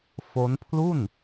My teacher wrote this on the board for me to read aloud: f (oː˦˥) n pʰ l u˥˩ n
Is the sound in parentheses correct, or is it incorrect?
incorrect